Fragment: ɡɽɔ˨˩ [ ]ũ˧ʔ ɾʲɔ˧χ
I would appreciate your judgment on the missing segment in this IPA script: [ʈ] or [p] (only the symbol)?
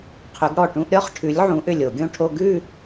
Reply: ʈ